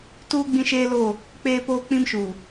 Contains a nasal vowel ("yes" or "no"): yes